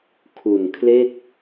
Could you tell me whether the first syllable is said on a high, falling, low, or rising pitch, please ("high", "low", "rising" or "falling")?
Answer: low